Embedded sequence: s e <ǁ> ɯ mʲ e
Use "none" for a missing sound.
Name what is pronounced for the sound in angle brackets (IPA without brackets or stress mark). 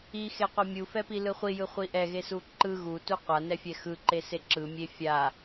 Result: ǁ